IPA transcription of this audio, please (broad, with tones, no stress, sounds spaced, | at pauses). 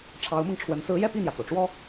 ʈ͡ʂʰ ɑ˧˥ ʊ̯ m ɤ˧ ŋ ʈ͡ʂʰ w ə˧˥ n s ɹ̩˧˥ j ɛ˥˧ p i˥˩ n̪ j ä˩ t͡s o˩ ʊ̯ ʈ͡ʂ w ɔ˥